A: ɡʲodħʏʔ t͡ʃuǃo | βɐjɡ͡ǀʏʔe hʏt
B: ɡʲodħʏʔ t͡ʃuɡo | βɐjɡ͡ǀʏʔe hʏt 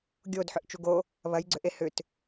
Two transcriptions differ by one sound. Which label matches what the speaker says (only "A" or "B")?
B